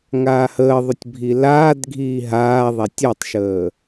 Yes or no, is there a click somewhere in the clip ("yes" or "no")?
no